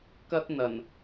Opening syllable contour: high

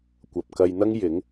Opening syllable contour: low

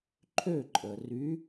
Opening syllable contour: falling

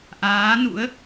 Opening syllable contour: rising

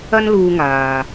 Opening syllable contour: high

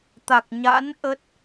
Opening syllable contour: low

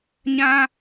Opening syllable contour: high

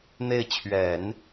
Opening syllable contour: falling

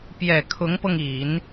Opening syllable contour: low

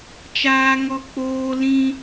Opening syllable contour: high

